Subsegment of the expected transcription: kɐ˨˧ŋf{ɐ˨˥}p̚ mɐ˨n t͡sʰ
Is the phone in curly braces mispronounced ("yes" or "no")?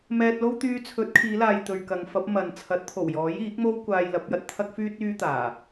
no